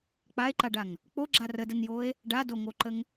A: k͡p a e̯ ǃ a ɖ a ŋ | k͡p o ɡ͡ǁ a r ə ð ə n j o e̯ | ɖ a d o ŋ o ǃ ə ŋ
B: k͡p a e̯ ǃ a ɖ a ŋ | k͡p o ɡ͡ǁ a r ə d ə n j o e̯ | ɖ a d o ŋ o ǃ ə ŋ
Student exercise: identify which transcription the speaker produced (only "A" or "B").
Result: B